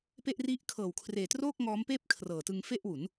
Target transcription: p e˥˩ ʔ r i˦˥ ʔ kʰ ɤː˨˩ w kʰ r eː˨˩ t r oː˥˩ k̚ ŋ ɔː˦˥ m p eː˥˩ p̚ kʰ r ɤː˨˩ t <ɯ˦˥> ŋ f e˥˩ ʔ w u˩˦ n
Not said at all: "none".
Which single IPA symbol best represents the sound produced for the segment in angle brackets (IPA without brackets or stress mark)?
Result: ɯ˧